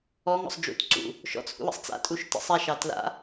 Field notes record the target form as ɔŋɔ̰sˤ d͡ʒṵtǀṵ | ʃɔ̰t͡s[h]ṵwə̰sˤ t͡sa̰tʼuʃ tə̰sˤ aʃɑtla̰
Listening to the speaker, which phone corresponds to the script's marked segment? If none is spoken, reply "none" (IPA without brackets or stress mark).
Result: h